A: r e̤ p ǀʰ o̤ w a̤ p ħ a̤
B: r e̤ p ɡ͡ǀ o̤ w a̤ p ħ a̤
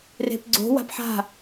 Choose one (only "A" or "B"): B